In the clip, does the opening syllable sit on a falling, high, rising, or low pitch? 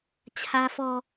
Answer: high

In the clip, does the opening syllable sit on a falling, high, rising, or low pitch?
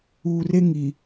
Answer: low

